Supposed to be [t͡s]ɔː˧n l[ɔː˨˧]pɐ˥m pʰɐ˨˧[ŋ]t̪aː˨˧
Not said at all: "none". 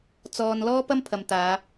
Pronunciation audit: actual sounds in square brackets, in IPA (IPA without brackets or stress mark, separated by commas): t͡s, ɔː˥, m